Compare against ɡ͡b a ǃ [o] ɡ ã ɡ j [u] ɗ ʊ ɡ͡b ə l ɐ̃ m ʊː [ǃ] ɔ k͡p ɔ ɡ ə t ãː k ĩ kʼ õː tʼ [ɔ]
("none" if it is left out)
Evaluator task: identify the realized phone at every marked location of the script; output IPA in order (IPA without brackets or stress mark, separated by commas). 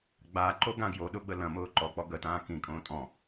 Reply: o, o, ǃ, ɔ̃